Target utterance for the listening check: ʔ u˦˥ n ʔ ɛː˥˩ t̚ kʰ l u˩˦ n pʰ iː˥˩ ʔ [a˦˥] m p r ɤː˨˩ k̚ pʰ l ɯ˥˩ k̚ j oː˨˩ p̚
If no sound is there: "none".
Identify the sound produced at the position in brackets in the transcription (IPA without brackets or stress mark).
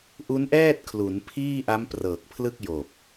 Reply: a˦˥